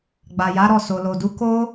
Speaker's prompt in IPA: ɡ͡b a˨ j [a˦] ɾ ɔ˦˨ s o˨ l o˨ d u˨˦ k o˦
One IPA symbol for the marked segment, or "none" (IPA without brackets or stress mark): a˨˦